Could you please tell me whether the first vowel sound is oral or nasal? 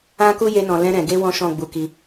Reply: nasal